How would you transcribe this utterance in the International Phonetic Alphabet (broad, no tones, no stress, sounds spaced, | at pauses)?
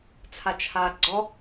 t͡sʰ a t͡ʃʰ a ɡ͡ǀ ɔ